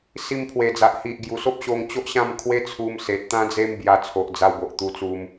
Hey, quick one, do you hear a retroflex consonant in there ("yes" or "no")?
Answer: no